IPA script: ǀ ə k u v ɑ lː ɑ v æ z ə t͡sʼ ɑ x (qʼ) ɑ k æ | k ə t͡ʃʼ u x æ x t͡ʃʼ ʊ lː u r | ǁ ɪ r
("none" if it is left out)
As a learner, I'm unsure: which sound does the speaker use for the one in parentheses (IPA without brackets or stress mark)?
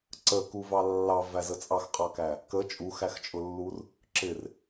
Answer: qʼ